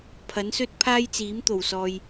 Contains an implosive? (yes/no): no